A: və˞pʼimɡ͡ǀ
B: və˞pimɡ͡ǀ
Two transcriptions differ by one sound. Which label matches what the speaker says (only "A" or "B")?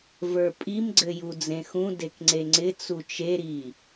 A